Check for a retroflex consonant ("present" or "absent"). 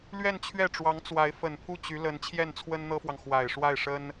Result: present